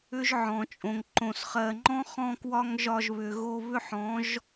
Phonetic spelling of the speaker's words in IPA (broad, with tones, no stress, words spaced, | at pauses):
ʏ˦ʒʕɔ̃˨t͡ʃʼõ˨ŋ ǃõ˨sχɜ˨ŋ͡ǃɔ̃˦ χɔ̃˧kwɒ˧ŋ ʒɒ˧ʒβʏ˨ ɣo˧βʏ˦ħɔ̃˨˦ʒ